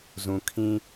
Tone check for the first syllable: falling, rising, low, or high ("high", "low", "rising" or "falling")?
low